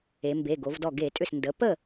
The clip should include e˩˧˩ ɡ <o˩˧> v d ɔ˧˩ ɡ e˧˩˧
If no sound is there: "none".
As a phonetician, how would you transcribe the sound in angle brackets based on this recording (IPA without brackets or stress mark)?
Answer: o˩˧